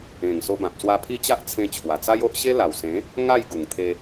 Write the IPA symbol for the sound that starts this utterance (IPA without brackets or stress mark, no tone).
ẽ